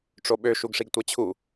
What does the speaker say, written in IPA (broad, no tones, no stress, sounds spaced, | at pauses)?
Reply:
ʈ͡ʂ o ɓ ø ʃ u ɡ ʂ i ɡ tʷ e t͡ɕʰ u